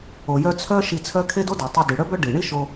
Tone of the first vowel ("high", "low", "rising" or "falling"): low